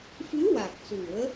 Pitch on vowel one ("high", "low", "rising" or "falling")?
rising